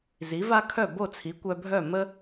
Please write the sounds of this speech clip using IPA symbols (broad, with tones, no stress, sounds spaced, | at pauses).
z i˩˥ v a˥ kʰ œ˥˩ b o˥˩ t͡sʰ i˩˥ kʷ œ˧ bʱ œ˥˩ m ə˥